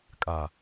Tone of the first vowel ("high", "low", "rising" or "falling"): low